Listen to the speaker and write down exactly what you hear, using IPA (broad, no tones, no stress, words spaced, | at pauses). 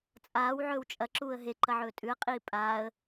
t͡sʼaːw ʕɵːwt͡ʃʼɐ ǁuːə̯ɦe ǃɐʕɵːtʼʉə̯ qʼiːpʼaːə̯